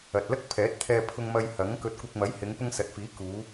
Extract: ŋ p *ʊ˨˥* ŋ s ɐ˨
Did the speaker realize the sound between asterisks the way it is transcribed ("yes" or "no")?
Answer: no